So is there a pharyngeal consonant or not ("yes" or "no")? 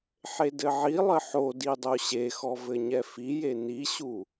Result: yes